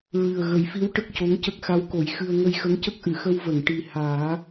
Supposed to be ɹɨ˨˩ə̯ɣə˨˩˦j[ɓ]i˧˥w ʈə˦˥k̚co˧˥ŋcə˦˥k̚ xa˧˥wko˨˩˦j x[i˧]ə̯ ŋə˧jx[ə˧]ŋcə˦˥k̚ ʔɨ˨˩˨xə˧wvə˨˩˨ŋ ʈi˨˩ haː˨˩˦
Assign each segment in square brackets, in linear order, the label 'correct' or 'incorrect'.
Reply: incorrect, incorrect, incorrect

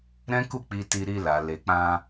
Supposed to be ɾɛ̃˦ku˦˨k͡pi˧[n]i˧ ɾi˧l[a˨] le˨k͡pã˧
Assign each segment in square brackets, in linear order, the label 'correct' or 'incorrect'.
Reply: incorrect, correct

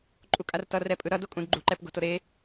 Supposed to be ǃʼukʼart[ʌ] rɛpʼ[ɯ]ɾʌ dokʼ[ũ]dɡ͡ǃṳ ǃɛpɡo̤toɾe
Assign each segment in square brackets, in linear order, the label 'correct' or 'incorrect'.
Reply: correct, correct, correct

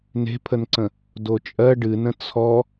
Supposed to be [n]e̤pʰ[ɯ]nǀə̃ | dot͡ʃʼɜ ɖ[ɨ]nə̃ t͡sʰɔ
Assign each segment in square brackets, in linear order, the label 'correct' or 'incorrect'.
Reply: correct, incorrect, correct

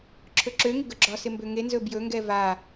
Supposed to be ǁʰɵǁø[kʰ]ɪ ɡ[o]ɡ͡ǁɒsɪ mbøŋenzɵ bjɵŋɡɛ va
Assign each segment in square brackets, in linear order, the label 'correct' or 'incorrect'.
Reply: incorrect, incorrect

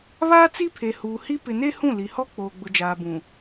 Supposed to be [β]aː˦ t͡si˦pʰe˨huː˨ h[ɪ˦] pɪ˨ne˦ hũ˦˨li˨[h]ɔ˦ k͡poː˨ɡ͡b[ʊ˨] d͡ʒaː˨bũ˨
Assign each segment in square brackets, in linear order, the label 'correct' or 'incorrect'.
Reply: correct, incorrect, correct, correct

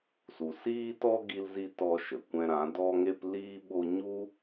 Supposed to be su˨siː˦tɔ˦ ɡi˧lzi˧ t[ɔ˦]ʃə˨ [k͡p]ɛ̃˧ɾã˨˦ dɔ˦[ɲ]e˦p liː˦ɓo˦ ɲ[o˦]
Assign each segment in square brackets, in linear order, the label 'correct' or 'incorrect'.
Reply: correct, incorrect, incorrect, incorrect

